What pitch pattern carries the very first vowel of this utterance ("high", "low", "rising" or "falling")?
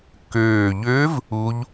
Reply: low